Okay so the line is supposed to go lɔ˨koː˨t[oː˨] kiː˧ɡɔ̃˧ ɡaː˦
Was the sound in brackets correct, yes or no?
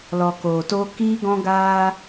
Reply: no